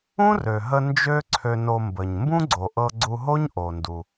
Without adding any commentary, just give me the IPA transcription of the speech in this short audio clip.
ũ˥rø˩ɦə˧ nd͡ʒø˥ǀʰø˧no˧mbə˩ɲ mbũ˥ɡ͡ǀo˩ ʔɤ˧ɡ͡ǀu˧ɦo˥ɲ ʔo˩ndu˩

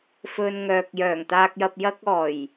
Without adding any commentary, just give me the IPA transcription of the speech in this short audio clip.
fɵ˧nŋœː˨k̚ jœː˨˩ŋt̪aː˧k̚jɐ˧p̚ jɐ˥k̚ɔː˨˩j

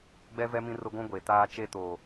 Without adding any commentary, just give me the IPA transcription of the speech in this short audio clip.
ɡ͡bɛ˦vɛ˦ mĩ˦rʊ˦ɡʷũ˦ ɡʷe˨ taː˦t͡ʃe˦ to˨

